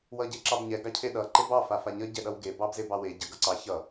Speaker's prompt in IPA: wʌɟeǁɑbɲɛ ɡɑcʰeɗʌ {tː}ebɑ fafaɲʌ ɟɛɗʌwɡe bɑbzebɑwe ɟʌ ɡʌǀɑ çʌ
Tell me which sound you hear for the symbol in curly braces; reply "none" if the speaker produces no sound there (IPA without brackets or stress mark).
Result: ǃ